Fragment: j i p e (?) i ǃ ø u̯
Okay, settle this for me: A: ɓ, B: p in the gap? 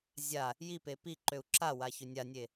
B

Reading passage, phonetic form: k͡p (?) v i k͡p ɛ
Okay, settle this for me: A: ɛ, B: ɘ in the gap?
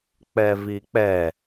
A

